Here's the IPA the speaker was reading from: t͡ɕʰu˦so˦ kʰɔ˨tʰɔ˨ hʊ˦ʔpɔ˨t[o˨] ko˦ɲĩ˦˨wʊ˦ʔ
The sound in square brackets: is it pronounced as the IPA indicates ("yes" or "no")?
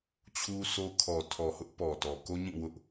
no